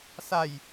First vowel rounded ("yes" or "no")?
no